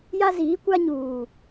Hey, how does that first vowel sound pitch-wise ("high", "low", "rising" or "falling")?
high